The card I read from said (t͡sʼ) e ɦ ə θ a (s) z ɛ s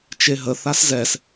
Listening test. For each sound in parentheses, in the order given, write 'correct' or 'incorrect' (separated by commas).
incorrect, correct